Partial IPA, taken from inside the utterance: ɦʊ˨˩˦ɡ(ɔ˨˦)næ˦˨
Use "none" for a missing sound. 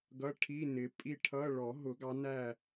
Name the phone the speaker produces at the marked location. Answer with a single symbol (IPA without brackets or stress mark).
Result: ɑ˨˦